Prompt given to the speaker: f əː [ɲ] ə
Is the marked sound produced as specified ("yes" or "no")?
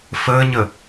yes